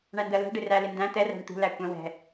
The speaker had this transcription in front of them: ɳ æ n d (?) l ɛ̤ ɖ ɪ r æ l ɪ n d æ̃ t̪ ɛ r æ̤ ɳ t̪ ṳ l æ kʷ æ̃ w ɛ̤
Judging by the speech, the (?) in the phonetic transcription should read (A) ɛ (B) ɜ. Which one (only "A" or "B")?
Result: B